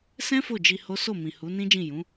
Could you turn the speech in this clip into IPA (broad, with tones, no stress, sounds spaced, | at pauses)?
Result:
s ɛ̃˦ f o˦˨ d͡ʒ i˧ h o˦ s o˦˨ m ĩ˨ h u˨˦ n ĩ˦ d͡ʒ ĩ˦˨ j ũ˨˦